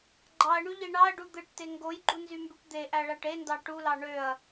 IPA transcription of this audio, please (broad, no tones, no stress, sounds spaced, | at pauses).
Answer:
ɡ͡ǃ ɑ ɐ̯ ɳ y ʎ i ɳ ɑ ɐ̯ ɖ u d̪ ɯ ʈ t e ŋ ɡ o j ɡ͡ǃ u n z y m b y ʈ d̪ e ʔ æ ɭ æ ʈ e n d ɑ ʈ u l ɑ ɳ ø ɐ̯